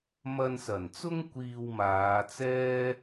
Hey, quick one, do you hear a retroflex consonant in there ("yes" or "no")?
no